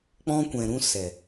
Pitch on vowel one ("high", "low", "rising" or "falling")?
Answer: high